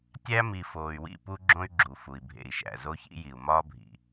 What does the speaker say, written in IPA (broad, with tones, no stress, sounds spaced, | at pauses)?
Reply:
tʲ æ˦ m i˨ f oː˨ y̯ w ḭ˦˨ p u˦ ɡ͡ǁ õ˦ y̯ ɡ͡ǁ u˨ f u˨ i̯ bʱ ḛ˨ i̯ ʃ æ̰˨ z o˦ ç ḭ˦ j i˨ u̯ m ɒː˦ bʱ ḭ˨